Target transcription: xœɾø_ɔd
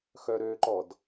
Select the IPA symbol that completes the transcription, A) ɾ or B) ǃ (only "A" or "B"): B